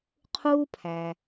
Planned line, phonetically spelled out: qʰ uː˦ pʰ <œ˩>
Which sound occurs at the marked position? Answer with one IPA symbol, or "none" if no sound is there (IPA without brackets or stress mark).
æ˩